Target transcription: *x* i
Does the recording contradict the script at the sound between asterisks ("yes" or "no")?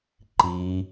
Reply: yes